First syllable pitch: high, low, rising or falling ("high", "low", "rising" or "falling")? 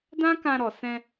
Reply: high